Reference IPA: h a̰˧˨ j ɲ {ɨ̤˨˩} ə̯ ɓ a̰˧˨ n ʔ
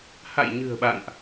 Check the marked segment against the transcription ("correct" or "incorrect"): correct